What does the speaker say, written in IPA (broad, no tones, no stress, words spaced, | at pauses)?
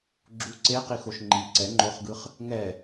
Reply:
ɡ͡ǁu ǀeqixoʃ ŋ͡ǃi ǀɛ ŋ͡ǃoχɡɯχ | ŋɛ